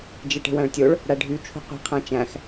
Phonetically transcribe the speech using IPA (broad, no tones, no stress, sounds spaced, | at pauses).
d͡ʒ e ʈ e̤ w æ̃ ɭ tʲ o ɭ | ɽ æ ɖʱ y t͡ʃʰ ṳ qʷ i̤ qʰ æ̃ t͡ʃ æ̃ x